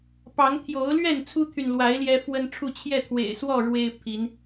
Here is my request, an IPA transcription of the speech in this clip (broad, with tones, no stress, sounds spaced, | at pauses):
p ɑ˨˦ ŋ t̪ʰ j o˨˦ ʊ̯ l ɥ ɛ˥˨ n t͡sʰ u˦ t̪ʰ y˨ n l w a˨˦ ɪ̯ l j ɛ˦ f w ə˦ n ʈ͡ʂʰ u˥˨ t͡ɕʰ j ɛ˥˨ t̪ʰ w ḛ˨˩ ɪ̯ s w ɔ˥˨ ɻ w e˦ ɪ̯ pʰ i˨˦ n